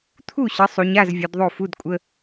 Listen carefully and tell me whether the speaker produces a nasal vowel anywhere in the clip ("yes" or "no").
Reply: no